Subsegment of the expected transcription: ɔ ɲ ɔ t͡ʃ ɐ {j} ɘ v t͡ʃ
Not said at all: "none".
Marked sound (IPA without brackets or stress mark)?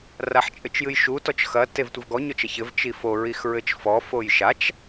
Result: ç